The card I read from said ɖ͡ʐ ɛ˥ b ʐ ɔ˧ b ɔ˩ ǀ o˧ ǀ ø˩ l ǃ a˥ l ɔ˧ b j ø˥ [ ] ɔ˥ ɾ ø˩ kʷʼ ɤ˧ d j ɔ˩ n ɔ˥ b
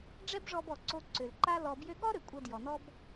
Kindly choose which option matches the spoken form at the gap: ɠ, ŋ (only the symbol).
ɠ